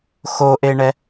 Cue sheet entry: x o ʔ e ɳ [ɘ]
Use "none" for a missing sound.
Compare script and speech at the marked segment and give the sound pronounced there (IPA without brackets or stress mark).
ɛ